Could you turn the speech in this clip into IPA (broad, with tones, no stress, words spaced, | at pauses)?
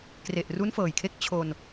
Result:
kre˨˩ʔru˦˥nfɤː˨˩jkʰe˦˥k̚ t͡ɕʰo˧n